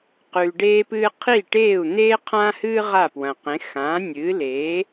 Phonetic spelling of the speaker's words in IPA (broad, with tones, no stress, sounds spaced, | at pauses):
q ʉː˩ ɖ eː˧ p ɨː˧ qʰ i˥˩ ʈ eː˥˩ u̯ n̪ eː˥ qʰ ã˥ h ɨː˥ ʁ a˥˩ p w ɐ̃˩ q ẽ˩˥ x ãː˩˥ nʲ ɨː˩˥ l eː˩˥